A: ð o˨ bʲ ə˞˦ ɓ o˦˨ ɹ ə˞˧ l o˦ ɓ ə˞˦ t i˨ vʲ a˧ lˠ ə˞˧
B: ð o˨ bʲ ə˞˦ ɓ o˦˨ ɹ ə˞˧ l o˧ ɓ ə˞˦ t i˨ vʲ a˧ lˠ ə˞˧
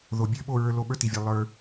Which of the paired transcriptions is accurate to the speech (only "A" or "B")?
B